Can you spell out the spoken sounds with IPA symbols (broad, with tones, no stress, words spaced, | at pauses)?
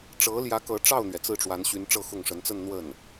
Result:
ʈ͡ʂɤ˧˥ljä˧˥ kɤ˧˥ʈ͡ʂɑ˥˩ʊ̯n̪ɥɛ˩ t͡sɹ̩˥˩ʈ͡ʂwa˧˥nɕy˧˥n ʈ͡ʂɤ˥˧xʊ˥˩ŋ ʂə˧˥nt͡sə˥˧n n̪wə˥˩n